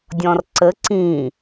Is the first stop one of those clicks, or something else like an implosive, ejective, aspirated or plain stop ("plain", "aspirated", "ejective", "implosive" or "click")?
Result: plain